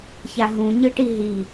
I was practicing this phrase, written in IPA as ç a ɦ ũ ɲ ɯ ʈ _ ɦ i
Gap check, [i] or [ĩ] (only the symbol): i